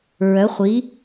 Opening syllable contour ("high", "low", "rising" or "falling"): rising